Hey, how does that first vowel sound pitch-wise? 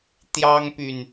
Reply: high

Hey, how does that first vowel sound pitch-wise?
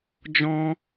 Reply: high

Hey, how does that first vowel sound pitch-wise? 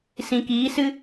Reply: low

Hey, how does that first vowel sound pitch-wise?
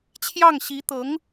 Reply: falling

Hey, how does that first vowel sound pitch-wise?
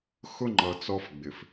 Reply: high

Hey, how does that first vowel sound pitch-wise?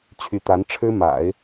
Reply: rising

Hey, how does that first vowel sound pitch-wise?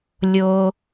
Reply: high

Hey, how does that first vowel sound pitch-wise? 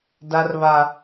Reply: high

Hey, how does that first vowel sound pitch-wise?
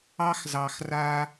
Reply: high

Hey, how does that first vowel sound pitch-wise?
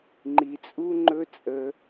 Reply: low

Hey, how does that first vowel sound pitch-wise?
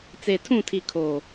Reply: low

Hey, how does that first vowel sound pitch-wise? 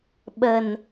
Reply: low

